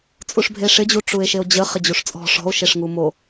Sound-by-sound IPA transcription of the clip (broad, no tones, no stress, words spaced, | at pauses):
t͡sʼuʂbʱeʂɪd͡ʑu ʈ͡ʂue̯ʃeo̯d͡ʑə χɪd͡ʑuʂt͡sʼɔ̤ ʂɔ̤o̯ʃeʂŋu mo